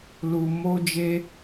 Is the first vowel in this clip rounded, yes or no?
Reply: yes